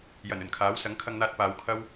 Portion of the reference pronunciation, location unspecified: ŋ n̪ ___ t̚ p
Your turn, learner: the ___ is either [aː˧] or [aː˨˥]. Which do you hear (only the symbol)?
aː˧